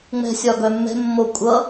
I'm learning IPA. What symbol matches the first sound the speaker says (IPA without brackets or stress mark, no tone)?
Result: ŋ͡m